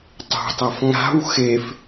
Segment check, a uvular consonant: absent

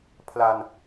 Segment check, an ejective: absent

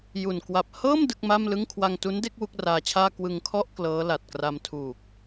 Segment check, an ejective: absent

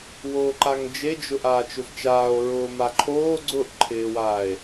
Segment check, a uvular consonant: absent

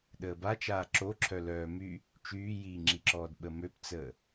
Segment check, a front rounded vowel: present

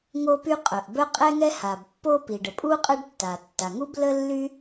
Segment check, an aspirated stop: absent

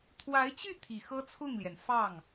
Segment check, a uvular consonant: absent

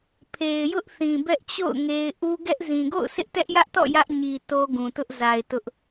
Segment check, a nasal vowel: present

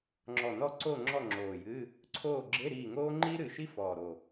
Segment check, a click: present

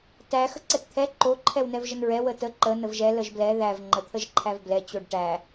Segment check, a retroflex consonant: present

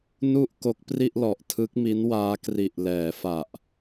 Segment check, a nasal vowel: absent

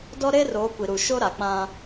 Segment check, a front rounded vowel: absent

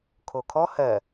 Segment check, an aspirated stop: present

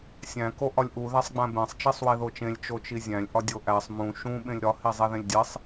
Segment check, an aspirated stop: absent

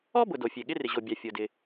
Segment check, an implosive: present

